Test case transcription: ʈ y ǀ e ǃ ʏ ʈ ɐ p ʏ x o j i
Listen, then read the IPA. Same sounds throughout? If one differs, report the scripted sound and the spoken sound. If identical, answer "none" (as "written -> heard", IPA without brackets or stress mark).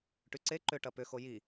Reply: none